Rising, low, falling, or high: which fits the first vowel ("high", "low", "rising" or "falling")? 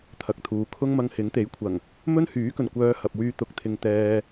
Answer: low